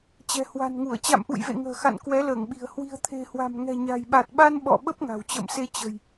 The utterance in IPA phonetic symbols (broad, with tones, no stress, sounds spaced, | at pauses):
t͡ɕ ɛ̤˨˩ h w a̤˨˩ n ŋ u˧˩ ə̯ t͡ɕ a̰˧˨ m ʔ ṵ˧˨ j v ḛ˧˨ ŋ ə̤ː˨˩ x a̰˧˨ n k w ɛ˨˦ l əː˧˩ ŋ ɓ i̤˨˩ ə̯ h w i̤˨˩ ə̯ t̪ʰ e̤˨˩ h w a̤˨˩ m ŋ ɛ̤˨˩ ɲ a̤˨˩ j ɓ a˨˩ t̚ ɓ a˧ n ɓ ɔ̰˧˨ ɓ ə˦˥ p̚ ŋ a̤˨˩ w t͡ɕ ə̰ː˧˨ m s e˧ t͡ɕ ə̤˨˩ j